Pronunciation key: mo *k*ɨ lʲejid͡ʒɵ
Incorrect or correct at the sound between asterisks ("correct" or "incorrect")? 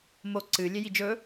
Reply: incorrect